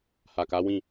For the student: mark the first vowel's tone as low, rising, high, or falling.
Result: low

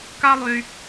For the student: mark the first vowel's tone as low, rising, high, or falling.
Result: high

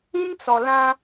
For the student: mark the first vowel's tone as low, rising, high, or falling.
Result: high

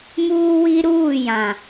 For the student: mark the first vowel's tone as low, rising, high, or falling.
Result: high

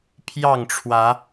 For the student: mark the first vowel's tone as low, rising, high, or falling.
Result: falling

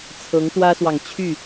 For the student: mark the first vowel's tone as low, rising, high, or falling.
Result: rising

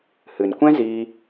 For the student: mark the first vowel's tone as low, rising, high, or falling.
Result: low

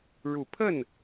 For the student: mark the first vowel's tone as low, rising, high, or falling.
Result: low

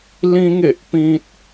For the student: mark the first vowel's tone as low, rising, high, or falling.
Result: high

